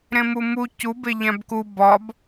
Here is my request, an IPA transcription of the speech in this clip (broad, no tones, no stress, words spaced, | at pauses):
ɾẽmumu cube ʎæ̃bku bɒb